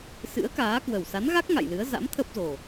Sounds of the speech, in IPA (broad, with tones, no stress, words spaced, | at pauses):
sɨ̰˧˥ə̯kaː˨˦ kwə˨˩wsa˨˦nɣa˦˥k̚ ŋa̰˧˨jlɨ˨˦ə̯ za̰˧˥mt̪ʰə˦˥p̚zo˨˩